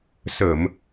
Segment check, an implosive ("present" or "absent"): absent